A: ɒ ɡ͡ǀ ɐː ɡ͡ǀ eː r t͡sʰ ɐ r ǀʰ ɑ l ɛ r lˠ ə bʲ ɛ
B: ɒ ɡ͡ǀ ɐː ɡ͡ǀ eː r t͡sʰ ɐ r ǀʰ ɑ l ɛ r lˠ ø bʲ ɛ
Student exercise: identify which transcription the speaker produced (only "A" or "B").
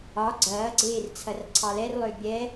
B